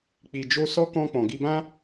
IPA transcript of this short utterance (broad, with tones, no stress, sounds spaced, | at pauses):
k͡p i˨ d͡ʒ o˧ s ɔ˦ k ɔ̃˧ k͡p ɔ̃˨ ɡ i˧ b ã˦